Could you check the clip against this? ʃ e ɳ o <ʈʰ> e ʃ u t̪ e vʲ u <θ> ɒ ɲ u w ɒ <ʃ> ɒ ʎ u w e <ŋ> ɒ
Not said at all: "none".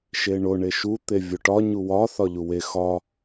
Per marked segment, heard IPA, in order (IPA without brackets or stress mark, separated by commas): ɳ, ʈ, θ, x